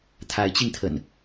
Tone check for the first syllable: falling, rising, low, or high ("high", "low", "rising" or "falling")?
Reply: rising